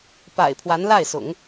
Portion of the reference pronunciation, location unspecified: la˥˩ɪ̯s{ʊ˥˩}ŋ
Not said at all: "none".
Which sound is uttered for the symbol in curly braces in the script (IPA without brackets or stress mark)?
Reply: ʊ̰˨˩˦